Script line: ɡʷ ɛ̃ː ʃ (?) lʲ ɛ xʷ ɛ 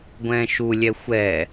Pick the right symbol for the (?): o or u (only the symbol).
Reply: u